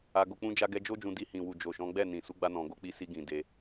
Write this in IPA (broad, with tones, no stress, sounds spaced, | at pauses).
a˧ ɡ o˧ k͡p ũ˦ d͡ʒ a˧ ɡ ɛ˧ d͡ʒ o˦ d͡ʒ ũ˧ d i˧ h ĩ˨ w u˨ d͡ʒ o˨ ʃ ɔ̃˨˦ ɡ͡b ɛ˦˨ n ĩ˨ s u˨˦ ɡ͡b a˧ n ɔ̃˨ ɡ o˧ k͡p i˧ s i˧ ɡ ĩ˨ d e˧